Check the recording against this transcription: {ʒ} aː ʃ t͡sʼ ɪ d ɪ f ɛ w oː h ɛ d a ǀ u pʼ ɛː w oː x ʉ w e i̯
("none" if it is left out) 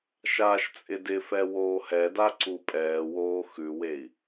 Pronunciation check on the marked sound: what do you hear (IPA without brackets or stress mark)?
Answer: ʃ